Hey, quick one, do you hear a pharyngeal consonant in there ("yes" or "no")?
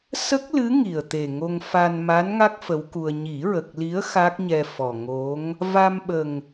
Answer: no